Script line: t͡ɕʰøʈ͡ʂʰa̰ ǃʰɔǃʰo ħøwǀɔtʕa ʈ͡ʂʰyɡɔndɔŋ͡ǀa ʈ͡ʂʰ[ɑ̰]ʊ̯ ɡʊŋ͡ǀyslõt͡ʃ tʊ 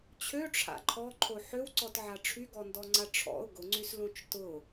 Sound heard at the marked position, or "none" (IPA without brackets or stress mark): ɔ̰